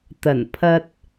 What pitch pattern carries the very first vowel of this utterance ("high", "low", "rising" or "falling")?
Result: low